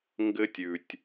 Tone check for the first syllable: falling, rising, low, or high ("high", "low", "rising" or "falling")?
high